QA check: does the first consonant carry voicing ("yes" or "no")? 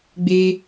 yes